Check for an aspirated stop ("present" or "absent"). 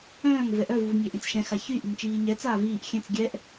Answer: absent